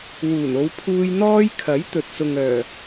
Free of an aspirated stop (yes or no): no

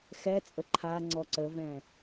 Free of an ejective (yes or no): no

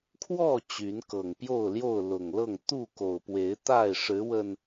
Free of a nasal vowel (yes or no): yes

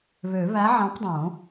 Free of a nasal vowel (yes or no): no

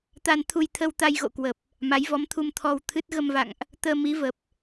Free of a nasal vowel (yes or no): yes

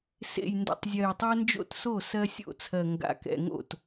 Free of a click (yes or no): yes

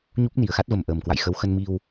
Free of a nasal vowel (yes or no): yes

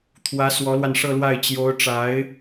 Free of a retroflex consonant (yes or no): no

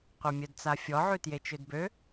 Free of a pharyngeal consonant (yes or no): no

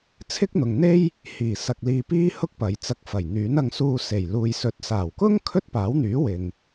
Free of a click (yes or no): yes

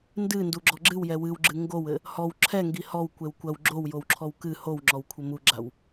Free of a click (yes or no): no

